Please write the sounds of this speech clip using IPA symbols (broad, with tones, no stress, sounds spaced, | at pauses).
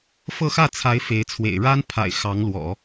f ɤ˥˧ x ä˥˩ t͡sʰ a˧˥ ɪ̯ f e˧˥ ɪ̯ t͡sʰ w ḛ˨˩ ɪ̯ ɻ a˥ n pʰ a̰˨˩ ɪ̯ x ɑ˧˥ ŋ l w ɔ̰˨˩˦